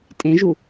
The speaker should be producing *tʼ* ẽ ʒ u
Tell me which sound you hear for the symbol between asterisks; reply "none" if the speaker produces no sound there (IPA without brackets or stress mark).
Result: tʼ